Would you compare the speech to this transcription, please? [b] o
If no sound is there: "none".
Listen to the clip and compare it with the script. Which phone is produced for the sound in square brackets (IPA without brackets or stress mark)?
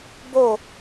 b